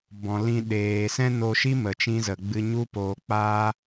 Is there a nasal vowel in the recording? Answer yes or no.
yes